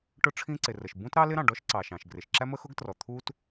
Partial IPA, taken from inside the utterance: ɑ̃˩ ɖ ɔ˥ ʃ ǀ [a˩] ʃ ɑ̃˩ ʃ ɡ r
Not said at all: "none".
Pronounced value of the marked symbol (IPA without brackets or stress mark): ɑ˩